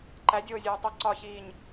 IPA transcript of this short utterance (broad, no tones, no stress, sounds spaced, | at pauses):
ǃ æ dʲ oː zʲ oː tˤ u ǀ ɒ ç iː ɲ